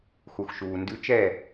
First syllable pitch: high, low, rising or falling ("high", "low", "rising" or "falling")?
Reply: low